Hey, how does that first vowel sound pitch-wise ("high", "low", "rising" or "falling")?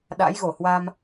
rising